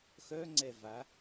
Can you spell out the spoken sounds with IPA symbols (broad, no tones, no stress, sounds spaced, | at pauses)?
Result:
x œ ŋ͡ǀ ɛ v a